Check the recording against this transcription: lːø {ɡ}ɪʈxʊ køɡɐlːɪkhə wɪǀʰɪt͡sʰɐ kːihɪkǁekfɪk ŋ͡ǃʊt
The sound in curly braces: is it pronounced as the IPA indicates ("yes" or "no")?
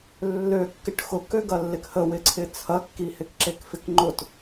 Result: no